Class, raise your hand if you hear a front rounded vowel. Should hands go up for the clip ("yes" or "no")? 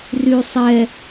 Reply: yes